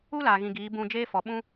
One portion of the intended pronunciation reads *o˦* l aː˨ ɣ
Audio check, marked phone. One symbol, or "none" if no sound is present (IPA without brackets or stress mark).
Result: u˦